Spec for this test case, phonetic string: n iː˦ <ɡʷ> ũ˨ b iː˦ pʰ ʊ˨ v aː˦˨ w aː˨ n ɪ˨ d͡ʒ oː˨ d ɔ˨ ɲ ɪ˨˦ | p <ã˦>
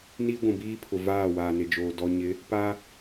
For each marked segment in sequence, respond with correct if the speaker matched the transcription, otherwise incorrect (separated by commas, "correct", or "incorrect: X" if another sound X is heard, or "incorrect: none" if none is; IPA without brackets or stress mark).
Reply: correct, incorrect: a˦